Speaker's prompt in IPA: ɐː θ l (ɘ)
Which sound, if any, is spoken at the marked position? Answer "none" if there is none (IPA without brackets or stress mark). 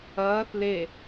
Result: e